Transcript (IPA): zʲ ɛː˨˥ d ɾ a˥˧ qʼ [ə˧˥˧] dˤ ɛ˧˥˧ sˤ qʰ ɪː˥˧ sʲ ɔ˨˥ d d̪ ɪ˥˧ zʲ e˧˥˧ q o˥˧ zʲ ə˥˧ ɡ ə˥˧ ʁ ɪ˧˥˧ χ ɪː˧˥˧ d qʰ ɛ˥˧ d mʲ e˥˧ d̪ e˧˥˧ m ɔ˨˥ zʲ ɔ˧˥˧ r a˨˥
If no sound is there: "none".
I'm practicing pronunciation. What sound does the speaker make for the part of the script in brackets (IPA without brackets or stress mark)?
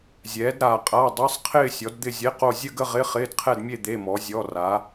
a˧˥˧